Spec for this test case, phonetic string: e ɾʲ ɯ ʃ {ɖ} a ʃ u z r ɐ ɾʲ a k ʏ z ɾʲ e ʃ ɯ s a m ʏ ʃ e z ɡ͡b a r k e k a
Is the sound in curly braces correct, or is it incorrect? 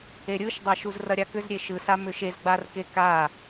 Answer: incorrect